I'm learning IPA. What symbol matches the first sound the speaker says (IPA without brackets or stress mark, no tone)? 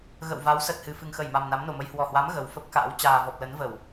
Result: ɣ